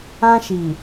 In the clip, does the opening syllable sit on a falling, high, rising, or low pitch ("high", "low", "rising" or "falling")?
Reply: high